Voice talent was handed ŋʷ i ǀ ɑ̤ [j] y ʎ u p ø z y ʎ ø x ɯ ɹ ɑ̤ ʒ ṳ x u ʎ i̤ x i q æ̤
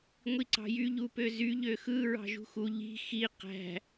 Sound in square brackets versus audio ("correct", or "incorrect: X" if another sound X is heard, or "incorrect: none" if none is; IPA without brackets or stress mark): correct